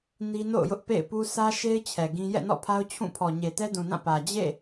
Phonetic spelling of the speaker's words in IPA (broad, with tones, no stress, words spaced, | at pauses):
ni˦no̰˦˨ʊ̯jʊ˦ʔ pḛ˦˨ɪ̯pu˦ sä˦ʃe˦ɪ̯ t͡ɕʰɛ˨ɡĩ˦ jɛ̰˦˨nɔ̰˦˨pʰa˦ʊ̯ t͡ɕʰũ˦˨ pʰɔ˨ɲe˨tɛ˦ dũ˨nã˦˨ pä˨ d͡ʑḛ˦˨